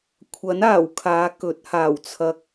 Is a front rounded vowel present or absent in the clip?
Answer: absent